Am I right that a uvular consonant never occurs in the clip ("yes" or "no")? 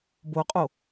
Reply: no